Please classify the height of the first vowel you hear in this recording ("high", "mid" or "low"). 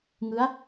high